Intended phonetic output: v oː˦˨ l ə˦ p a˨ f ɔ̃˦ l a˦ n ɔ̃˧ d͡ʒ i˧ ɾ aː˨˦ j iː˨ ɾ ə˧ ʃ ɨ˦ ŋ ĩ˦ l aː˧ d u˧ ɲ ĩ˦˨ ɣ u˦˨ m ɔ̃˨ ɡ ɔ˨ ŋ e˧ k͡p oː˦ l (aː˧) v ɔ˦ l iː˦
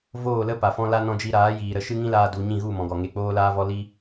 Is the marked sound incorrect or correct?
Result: incorrect